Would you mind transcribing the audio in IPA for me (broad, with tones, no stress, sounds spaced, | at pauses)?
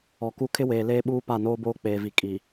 ɔ˨ k u˦ kʰ ɪ˦ w eː˨ l eː˦ ɓ uː˦ p a˦˨ n oː˦ b oː˦ k͡p eː˨ v i˨ kʼ i˨